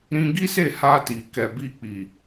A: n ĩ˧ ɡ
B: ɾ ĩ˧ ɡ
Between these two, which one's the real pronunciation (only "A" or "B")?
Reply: B